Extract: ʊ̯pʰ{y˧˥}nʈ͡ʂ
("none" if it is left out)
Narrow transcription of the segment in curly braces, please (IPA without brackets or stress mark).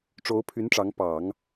y˧˥